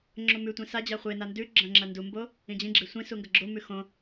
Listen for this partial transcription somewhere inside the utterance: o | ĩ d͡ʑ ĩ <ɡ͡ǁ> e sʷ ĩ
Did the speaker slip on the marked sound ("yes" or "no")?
no